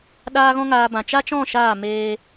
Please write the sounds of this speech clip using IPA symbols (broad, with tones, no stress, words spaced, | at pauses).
ɗaː˦ɣɔ̃˦ŋaː˧bã˨ t͡ʃa˦t͡ʃɔ̃˦˨ ʃaː˦˨meː˧